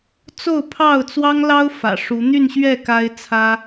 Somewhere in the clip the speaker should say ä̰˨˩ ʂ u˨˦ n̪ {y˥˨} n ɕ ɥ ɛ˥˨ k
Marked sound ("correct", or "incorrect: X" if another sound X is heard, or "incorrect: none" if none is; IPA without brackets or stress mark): correct